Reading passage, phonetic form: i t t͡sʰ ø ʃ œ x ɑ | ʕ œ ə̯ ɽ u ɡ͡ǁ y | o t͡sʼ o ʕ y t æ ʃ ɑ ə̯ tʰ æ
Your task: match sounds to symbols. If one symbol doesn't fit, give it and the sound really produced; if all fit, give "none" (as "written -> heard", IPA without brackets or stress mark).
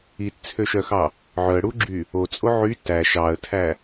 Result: none